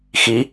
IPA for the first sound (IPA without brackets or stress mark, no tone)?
x